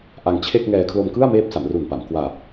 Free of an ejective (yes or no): yes